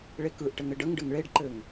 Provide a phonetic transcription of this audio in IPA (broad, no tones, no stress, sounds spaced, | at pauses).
ɭ e k ɯ ʔ ʈ ɘ ŋ ɘ ɖ ə ŋ ɖ ɘ ŋ ɭ e ɖ ǃ ɘ ŋ